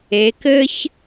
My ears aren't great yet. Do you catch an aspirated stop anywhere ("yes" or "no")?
no